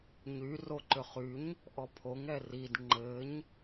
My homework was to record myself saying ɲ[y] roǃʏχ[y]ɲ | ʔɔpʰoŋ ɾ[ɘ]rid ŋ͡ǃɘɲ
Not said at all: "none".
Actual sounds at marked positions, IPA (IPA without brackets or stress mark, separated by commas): y, y, ɛ